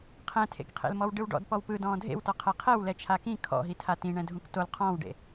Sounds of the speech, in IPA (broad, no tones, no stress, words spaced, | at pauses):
qʰɛ̃tʰḛkqʰḛlmɔw ɖɯwɖɔ̰d pɔwpɯ dɔ̃ːdʱḛwtɔ qʰɛqʰɛw lɛt͡ʃʰakĩ kʰɔ̰ɦitʰa tĩɳɛ̃dʱũk tol qʰɔ̃ːwɖḛ